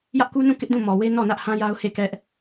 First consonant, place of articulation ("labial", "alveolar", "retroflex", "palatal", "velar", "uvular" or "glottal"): palatal